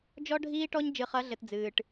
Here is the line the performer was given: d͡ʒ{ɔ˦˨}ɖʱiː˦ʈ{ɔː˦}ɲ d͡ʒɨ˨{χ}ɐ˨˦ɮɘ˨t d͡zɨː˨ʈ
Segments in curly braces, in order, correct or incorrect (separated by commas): incorrect, incorrect, correct